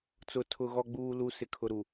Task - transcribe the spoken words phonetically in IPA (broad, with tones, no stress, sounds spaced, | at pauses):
t͡s ʊ˨ tʰ ʊ˨ ɣ ɔ˨ ɡ͡b uː˨ l u˨ s ɪ˨ kʰ ʊ˨ ɾ u˨